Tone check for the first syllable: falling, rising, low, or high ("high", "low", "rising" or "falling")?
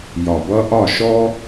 low